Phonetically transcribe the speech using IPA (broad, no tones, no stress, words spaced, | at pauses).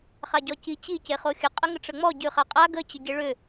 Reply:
χaɟɔci t͡ɕi ceχoxʲə qʼəŋəʈ͡ʂəŋ͡mɔ ɟʉχaqʼa ɡə t͡ɕʏɟeɭʏ